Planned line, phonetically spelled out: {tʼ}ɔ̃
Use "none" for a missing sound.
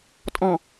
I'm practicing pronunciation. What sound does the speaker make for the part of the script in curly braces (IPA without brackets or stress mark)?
tʼ